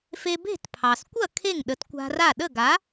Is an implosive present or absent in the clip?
present